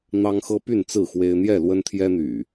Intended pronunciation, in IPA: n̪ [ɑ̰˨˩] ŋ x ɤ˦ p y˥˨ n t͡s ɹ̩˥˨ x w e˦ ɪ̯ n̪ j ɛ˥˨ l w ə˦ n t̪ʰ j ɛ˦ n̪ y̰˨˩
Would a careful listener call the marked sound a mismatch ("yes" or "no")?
yes